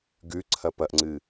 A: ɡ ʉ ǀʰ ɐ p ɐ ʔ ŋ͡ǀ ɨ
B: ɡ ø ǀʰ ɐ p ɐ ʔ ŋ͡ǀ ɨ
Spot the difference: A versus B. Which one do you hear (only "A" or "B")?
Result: A